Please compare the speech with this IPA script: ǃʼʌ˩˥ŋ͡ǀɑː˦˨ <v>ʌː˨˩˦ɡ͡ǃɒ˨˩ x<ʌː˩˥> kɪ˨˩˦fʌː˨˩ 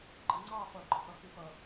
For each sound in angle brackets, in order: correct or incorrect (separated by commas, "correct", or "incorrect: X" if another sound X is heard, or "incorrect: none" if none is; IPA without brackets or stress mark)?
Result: incorrect: f, correct